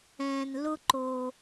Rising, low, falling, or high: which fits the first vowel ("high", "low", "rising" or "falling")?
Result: low